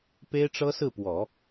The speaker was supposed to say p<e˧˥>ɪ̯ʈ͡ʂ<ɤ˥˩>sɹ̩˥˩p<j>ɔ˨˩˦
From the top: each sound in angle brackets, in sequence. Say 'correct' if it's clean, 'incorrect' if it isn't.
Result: incorrect: e˥, incorrect: ɤ˥, incorrect: w

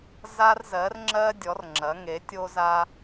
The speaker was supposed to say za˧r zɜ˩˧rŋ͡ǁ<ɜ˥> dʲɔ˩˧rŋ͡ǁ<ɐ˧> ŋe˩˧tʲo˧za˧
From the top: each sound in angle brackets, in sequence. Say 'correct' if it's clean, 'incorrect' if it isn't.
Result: incorrect: ɜ˧, incorrect: ɐ˩˧

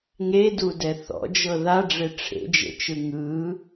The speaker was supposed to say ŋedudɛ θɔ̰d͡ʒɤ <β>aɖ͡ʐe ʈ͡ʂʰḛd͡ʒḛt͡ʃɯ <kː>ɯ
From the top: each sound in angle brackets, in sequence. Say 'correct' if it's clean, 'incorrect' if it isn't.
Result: incorrect: ð, incorrect: ŋ

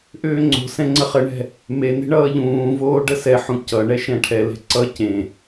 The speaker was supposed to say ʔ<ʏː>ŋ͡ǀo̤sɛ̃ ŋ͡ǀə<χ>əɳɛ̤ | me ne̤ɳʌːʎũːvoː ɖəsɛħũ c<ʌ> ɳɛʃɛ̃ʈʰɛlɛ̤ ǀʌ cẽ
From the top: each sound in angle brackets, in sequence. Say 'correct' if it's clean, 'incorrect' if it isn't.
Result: correct, correct, correct

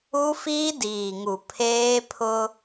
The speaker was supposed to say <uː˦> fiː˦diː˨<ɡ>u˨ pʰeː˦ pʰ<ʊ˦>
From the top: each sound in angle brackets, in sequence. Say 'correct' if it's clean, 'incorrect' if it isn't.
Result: incorrect: u˦, incorrect: ŋ, correct

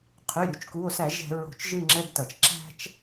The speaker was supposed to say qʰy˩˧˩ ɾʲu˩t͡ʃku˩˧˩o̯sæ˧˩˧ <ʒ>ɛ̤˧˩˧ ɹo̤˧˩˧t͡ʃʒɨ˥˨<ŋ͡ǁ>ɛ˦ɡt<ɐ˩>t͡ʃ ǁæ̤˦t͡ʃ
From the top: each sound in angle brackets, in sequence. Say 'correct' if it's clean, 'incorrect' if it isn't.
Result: correct, correct, correct

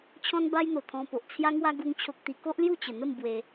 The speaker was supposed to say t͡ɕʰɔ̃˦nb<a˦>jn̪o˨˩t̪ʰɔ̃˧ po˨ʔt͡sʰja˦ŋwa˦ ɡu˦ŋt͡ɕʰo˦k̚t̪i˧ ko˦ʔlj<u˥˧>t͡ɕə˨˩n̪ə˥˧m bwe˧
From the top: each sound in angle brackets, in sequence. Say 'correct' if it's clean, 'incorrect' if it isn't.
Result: correct, correct

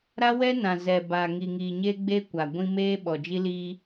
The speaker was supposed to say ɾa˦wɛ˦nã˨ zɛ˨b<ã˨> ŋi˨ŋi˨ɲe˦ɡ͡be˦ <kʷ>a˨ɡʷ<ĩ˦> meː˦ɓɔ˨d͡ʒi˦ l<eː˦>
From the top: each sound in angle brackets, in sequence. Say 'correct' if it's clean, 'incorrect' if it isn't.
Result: incorrect: a˨, correct, correct, incorrect: iː˦

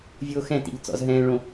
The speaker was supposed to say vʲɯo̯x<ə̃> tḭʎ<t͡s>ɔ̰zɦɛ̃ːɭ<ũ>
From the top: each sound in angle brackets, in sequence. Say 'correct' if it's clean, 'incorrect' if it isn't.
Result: incorrect: ɛ̃, correct, incorrect: õ

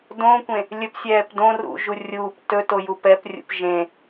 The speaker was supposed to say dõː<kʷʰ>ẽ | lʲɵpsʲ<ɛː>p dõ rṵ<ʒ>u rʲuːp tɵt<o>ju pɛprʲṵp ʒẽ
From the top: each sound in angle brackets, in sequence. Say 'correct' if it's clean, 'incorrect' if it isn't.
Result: incorrect: kʷ, correct, correct, correct

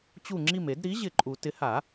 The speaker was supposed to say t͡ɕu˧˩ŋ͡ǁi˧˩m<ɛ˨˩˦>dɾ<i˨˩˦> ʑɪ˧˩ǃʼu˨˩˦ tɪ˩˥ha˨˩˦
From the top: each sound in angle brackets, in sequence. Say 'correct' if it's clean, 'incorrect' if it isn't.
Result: incorrect: e˨˩˦, incorrect: i˩˥

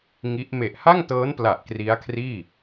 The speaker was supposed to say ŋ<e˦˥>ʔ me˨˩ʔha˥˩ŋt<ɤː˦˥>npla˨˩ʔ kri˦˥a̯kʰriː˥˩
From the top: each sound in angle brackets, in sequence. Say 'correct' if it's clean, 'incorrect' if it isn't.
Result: incorrect: i˦˥, correct

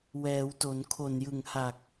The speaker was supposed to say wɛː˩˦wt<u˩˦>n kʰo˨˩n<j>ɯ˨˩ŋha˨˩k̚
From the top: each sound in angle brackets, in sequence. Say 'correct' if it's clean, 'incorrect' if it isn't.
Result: incorrect: o˩˦, correct

